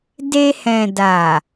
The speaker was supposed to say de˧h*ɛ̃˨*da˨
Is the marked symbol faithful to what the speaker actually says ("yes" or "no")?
yes